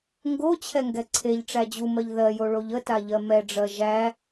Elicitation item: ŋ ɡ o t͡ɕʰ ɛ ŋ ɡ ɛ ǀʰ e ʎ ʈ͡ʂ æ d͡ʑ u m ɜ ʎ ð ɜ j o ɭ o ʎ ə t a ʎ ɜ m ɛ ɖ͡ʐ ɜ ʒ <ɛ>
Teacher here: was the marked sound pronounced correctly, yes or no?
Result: no